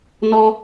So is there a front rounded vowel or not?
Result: no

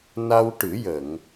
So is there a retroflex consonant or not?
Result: yes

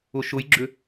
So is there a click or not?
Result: yes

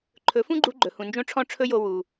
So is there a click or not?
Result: yes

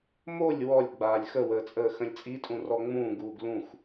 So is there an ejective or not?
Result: yes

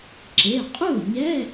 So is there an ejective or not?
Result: yes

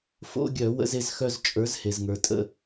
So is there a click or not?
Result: no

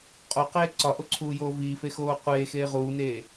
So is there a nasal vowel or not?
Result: no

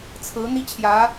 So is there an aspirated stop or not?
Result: yes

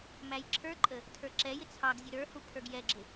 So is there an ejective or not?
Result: yes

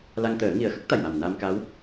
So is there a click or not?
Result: no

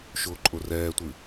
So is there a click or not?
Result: yes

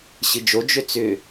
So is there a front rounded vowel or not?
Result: yes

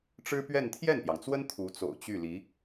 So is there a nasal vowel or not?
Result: no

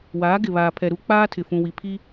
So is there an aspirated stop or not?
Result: yes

